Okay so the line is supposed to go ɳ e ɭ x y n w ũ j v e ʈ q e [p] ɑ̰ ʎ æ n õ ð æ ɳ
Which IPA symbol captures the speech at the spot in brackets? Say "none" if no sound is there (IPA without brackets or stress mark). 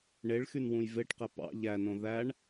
p